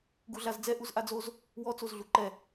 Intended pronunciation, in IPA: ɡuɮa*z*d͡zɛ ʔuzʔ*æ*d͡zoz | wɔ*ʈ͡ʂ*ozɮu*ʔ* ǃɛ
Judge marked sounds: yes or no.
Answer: yes, no, no, no

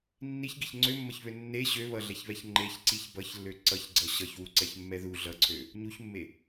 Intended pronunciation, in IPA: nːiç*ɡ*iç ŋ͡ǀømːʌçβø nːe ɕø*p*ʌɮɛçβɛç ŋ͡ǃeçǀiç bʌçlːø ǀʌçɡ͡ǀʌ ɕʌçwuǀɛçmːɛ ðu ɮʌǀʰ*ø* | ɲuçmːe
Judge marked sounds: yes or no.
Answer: yes, no, yes

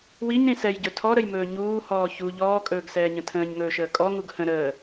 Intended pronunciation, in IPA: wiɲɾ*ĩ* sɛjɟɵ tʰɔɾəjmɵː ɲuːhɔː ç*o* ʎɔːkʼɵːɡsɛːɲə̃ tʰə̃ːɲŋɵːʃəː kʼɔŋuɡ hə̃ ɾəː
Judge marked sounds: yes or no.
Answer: yes, no

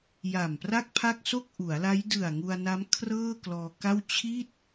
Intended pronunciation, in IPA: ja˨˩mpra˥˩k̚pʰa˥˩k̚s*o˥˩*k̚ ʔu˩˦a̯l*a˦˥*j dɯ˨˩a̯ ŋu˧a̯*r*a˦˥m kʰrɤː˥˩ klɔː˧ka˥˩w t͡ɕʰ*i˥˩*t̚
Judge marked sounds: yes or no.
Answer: yes, yes, no, yes

